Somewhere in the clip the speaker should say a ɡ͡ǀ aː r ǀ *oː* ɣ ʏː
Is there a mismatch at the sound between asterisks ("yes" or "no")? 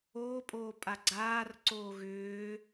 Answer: no